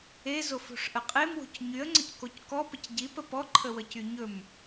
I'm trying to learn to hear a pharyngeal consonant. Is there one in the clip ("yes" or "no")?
no